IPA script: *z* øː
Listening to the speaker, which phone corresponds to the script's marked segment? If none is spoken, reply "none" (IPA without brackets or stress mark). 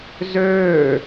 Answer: z